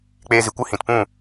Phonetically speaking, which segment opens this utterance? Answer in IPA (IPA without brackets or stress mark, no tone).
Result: k͡p